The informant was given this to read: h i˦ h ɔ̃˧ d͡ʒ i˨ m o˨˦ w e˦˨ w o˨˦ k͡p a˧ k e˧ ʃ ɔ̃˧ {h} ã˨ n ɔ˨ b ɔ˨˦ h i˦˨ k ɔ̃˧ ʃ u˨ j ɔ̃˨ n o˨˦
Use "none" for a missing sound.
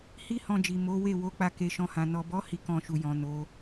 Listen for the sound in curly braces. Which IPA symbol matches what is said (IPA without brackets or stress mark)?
h